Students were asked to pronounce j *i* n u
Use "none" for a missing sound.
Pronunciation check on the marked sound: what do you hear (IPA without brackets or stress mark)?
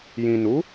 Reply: ĩ